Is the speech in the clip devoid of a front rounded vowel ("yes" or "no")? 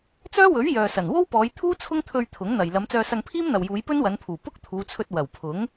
no